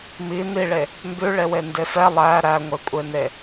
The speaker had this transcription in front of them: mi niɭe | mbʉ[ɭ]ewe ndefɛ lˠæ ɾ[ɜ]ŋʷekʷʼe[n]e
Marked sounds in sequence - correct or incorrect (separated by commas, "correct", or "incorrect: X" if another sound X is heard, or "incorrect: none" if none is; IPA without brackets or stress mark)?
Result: correct, incorrect: æ, correct